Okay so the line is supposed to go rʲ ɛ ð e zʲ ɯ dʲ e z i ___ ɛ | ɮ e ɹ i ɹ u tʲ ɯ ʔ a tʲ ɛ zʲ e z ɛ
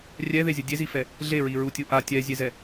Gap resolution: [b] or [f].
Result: f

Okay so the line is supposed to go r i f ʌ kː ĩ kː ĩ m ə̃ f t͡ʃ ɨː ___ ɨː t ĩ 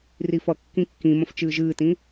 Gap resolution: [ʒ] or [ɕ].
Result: ʒ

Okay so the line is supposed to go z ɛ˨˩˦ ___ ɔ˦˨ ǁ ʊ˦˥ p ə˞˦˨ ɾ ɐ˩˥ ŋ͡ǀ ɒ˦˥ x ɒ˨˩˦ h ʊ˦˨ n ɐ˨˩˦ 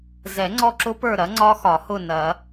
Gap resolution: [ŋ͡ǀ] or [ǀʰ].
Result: ŋ͡ǀ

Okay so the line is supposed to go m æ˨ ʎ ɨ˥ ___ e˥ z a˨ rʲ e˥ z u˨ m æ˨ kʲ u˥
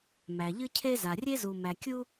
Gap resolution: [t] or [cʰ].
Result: cʰ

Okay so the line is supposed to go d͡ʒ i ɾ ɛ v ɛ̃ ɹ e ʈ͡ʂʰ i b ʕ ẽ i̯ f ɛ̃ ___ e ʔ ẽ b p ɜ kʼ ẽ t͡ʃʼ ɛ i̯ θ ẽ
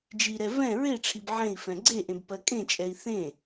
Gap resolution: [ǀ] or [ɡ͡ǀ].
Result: ɡ͡ǀ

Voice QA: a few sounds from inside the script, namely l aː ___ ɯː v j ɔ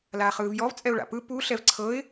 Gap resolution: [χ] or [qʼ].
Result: χ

